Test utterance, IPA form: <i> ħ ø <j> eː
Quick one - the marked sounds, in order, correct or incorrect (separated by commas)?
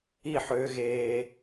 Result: correct, incorrect